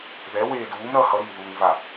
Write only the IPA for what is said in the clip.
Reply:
ð ɛ w eː d uː m ɾ ʌ h ʌ ɾ iː ð uː ŋ v a

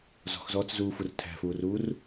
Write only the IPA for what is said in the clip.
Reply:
z ɔ̤ x z ɔː t͡s z uː f u r tʰ æ̤ f uː r uː r

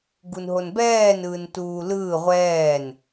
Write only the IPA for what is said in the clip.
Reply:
ɡ u n ɦ o n b ɛː n ɯː n t uː l ɯː ʁʷ ɛː n

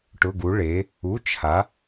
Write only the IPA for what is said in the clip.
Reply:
ʈ ʊ˧˥˧ ɡ u˧˥ ɭ e˧˥ | u˧˥˧ t͡ʃʰ a˧˥

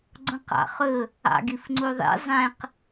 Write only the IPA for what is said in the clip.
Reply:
ɡ͡ǀ õ q ɑ̰ χ ɵ | ɑ̰ ɡ i f ŋ͡ǀ u ðˤ ḭ zˤ ɛ̃ q

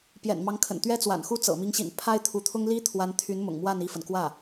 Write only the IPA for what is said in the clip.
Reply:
p j ɛ̰˨˩ n m ɑ˧˥ ŋ kʰ ə̰˨˩ n t̪ ɥ ɛ˥ t͡s w a̰˨˩ n x u˥ t͡s ɤ̰˨˩ m i˧˥ ŋ ɕ ḭ˨˩ n pʰ a˥ ɪ̯ t̪ʰ u˧˥ t̪ʰ ʊ˥ ŋ l i˥ t̪ʰ w a˧˥ n t̪ʰ y˧˥ n m ʊ̰˨˩ ŋ m w a˥˧ n i˥˩ f ə˩ n k w ä˥˩

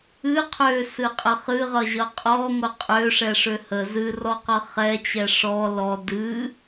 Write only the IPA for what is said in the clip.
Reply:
ɨ qʰ ø s ɨ qʼ ə χ ɨ ʁ ʌ ʑ ʌ qʼ ɔ ŋʷ ə qʼ ø ʂ ɛ ʂ ø h ə z ɨ r ɔ q ʌ χ ɛ t͡ɕ ɛ ʂ ɔ l ɔ d ɨ

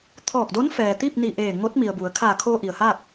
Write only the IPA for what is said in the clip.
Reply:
t̪ʰ ɔː˧˩ k̚ d o˧˥ n f ɛː˩ t̪ i˥˨ p̚ n i˧˩ ʔ eː˧˩ ŋ o˧˥ t̚ m i˩ ə̯ b u˩˧ ə̯ kʰ a˧˩ kʰ o˧ ʔ i˩ ə̯ h a˥˨ k̚

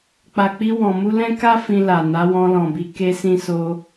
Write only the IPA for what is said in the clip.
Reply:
k͡p a˨ k͡p i˧ w ɔ̃˨ m u˧ l ɛ̃˦ k a˦ f ĩ˧ l a˨ n a˨˦ w ɔ̃˧ l ɔ̃˨ b i˧ k e˧ s ĩ˧ s o˧

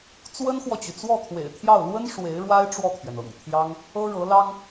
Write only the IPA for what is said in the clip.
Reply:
t͡s w ə˥ n x w ɔ˨ t͡ɕ y˩ t͡s w ɔ˥˩ t̪ʰ w ḛ˨˩ ɪ̯ t̪ʰ j ɑ˥˩ ʊ̯ l w ə˥ n ʂ w e˧˥ ɪ̯ ɻ w a˥ ɪ̯ ʈ͡ʂ w ɔ˥˩ t̪ʰ ɥ ɛ˩ n ɤ̰˨˩ ŋ t̪ʰ j ɑ˥ ŋ | ɤ˥ ɻ ɤ˧˥ l ɑ˥ ŋ

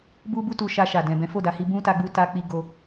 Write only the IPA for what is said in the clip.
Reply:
b u˦ b u˦ t u˧ ʃ a˧ ʃ a˨ d ɛ̃˨ b ɛ̃˨˦ f o˦˨ d a˧ h i˧ b ũ˦ t a˧ ɡ͡b u˧ t a˧ k͡p i˧ ɡ o˧

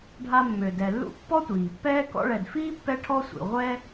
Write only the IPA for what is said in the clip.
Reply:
ɖʱ a˦ mː ø˨ d ɛ˨ lː ṵ˥ pː ɔ˥ tʷ iː˩ pː ɛː˥ k ɔ̰˦ ɭ ɛ˨ d f iː˥ pː ɛ˥ ʈʰ ɔ˥ sʷ ḭ˨ ʁʷ ɛ˥

